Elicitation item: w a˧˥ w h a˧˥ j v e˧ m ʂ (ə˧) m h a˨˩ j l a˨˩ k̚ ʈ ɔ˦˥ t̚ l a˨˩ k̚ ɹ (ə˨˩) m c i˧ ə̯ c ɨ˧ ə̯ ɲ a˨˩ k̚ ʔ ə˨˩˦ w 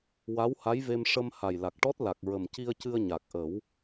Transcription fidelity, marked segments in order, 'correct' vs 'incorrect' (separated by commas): correct, correct